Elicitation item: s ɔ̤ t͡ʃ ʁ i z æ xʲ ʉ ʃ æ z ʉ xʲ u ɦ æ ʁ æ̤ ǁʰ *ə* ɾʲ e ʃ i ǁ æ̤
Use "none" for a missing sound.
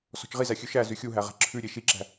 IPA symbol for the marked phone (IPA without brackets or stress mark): ʉ